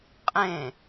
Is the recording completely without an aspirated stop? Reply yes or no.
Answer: yes